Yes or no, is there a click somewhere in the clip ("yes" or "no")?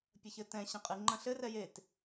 yes